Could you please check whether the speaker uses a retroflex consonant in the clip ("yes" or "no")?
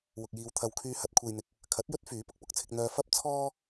no